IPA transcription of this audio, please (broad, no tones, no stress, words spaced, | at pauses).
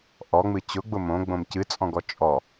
ʔɔŋ͡mɨ t͡ɕʊɡ͡bʊ mõɡ͡bõm cɨt͡sʼɔ̃ɡɔ t͡ʃʼɔ